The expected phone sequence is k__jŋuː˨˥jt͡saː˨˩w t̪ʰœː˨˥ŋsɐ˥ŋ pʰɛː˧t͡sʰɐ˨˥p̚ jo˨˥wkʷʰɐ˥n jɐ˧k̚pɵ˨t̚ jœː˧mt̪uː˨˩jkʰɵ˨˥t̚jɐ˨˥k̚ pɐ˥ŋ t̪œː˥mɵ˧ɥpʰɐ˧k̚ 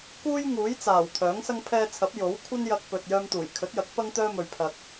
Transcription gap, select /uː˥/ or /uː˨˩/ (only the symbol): uː˥